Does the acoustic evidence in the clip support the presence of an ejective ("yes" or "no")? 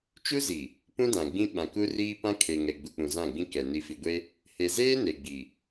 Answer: no